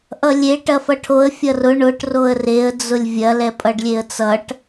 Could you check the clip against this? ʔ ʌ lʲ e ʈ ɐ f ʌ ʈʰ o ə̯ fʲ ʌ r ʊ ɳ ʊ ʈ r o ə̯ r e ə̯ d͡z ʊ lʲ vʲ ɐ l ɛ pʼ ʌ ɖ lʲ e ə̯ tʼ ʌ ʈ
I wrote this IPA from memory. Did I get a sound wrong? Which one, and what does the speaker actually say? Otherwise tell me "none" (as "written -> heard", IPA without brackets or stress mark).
tʼ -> t͡s